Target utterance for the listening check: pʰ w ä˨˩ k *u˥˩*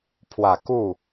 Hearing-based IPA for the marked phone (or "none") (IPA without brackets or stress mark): u˥˩